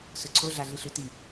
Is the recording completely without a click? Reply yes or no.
no